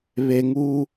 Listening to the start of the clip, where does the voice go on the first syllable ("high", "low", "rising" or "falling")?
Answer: low